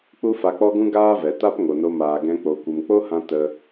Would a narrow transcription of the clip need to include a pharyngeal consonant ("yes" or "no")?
no